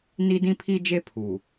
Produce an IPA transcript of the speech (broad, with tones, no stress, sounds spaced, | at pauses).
n i˦ d ĩ˦ pʰ i˦ d͡ʒ e˦ pʰ u˨